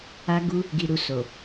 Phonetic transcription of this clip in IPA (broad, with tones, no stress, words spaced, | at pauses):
a˧ɡu˧ | ɡi˨ɾu˨ so˨